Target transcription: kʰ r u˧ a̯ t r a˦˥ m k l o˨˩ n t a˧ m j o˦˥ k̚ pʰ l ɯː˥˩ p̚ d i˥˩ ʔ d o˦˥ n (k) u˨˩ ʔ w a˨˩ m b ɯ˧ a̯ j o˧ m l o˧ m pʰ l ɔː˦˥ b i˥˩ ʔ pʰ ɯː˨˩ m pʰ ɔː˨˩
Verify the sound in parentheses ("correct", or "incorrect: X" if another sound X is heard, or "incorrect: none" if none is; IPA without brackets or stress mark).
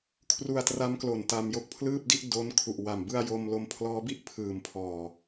incorrect: kʰ